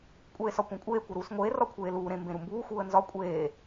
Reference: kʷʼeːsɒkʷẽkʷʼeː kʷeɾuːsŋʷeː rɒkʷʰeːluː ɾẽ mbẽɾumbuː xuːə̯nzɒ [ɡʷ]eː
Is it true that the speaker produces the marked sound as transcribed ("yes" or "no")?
no